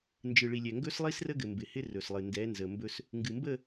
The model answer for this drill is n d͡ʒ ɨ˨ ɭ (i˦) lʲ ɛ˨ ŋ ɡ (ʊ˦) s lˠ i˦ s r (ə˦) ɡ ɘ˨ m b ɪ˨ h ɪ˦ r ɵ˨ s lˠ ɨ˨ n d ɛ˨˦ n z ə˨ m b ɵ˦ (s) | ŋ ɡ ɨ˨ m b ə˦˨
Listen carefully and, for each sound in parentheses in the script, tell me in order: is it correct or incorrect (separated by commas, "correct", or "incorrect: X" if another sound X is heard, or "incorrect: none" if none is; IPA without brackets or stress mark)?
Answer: incorrect: i˨, incorrect: ɵ˦, correct, correct